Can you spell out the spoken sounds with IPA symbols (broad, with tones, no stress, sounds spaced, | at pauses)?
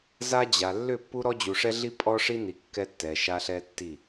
z a˦ d͡ʑ a˨ lː ʏ˦˨ pː u˦ ɾ ɔ˦ d͡ʑ u˨ ʂ ɛ˦ ɮ i˦ pʼ ɔ˦ ʂ i˦ n i˨ kː ɛ˦ tː ɛ˨ ʃ a˦ ɬ ɛ˦ tː i˦˨